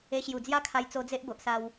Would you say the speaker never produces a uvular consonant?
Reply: yes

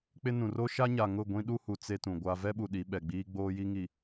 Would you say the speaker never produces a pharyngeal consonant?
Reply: yes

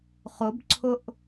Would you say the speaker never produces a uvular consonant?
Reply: no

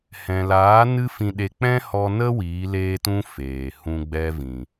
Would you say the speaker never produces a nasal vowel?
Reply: no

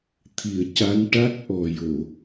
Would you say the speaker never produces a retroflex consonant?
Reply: no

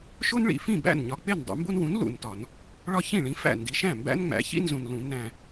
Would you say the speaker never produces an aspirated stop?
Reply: yes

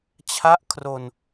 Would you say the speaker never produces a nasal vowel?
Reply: yes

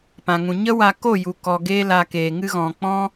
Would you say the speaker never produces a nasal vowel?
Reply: no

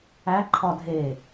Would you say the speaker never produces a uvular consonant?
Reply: yes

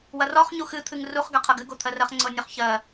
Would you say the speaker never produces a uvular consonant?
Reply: no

